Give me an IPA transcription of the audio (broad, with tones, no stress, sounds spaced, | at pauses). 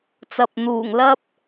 t͡s ɐ˨ p̚ n̪ uː˨˩ ŋ l ɐ˥ p̚